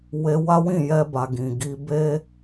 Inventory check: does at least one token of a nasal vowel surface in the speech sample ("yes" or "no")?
yes